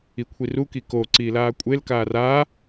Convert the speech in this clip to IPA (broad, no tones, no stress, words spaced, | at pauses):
ikʷʰiru kiko ǀiːlaːkʷʼel kaːraː